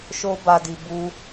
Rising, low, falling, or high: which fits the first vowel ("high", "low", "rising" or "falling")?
high